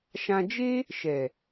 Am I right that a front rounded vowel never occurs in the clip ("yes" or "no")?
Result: yes